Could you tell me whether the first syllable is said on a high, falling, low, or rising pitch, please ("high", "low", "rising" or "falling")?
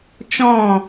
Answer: falling